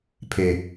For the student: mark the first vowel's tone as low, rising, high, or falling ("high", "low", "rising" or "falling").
low